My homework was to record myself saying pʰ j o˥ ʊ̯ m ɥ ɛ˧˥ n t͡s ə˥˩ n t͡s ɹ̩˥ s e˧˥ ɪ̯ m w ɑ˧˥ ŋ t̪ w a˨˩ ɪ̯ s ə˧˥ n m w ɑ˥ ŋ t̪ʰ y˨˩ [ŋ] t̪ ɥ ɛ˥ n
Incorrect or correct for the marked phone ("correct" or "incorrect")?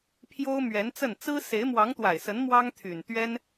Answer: incorrect